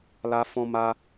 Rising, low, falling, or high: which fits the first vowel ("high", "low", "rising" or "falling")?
high